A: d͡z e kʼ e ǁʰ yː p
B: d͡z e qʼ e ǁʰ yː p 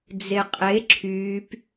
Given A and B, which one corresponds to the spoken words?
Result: B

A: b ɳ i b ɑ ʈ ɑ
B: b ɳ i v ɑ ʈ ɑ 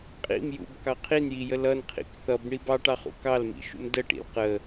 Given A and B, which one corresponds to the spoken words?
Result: A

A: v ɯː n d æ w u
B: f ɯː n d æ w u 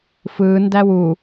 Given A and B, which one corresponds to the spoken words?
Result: B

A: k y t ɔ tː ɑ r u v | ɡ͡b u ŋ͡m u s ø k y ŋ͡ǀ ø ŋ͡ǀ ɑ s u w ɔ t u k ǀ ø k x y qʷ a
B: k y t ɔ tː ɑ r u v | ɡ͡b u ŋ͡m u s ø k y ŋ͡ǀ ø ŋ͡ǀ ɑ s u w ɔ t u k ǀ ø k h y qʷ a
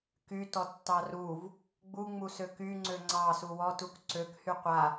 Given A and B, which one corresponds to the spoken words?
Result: B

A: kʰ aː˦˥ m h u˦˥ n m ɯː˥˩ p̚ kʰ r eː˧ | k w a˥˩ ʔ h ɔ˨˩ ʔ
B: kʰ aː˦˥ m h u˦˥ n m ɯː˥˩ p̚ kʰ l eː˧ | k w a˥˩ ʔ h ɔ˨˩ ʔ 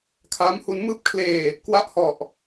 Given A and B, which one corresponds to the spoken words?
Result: B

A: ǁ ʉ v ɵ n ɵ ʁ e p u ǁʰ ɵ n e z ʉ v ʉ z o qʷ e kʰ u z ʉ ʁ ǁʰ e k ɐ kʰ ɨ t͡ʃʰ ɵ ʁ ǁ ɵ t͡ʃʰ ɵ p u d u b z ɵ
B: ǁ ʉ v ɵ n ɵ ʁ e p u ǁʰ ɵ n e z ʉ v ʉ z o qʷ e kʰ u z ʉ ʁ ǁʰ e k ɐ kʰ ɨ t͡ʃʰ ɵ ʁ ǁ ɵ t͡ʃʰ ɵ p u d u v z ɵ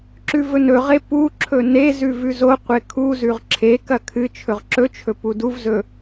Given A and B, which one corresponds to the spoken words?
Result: B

